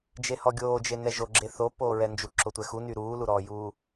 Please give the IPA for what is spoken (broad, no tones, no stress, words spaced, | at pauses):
d͡ʒehɔɡʲoːd͡ʒe nɛʒoɡ͡ǁe θo poːɹɛnd͡ʒu ǁotʷɛxuny ɾuːluɾɔːjuː